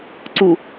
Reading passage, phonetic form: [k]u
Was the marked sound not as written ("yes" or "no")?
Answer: yes